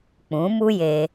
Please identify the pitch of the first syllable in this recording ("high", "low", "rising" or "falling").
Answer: rising